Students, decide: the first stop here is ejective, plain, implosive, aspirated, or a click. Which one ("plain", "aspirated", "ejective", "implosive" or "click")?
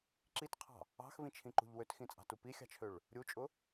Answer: click